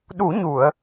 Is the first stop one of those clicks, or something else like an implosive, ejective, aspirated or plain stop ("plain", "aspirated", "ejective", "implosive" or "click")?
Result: implosive